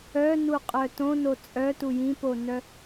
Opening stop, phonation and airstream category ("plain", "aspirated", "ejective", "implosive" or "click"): ejective